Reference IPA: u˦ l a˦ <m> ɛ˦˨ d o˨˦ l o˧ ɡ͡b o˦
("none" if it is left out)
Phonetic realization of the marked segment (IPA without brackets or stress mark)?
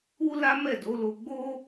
m